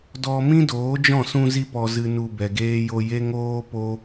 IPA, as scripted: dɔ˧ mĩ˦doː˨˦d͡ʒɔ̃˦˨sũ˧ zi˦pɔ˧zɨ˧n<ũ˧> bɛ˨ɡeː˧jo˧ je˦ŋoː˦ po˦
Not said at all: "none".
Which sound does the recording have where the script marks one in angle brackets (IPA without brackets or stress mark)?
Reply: u˧